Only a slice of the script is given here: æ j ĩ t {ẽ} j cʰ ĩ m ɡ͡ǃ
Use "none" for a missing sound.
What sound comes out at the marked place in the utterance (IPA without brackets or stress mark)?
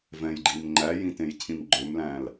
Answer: ẽ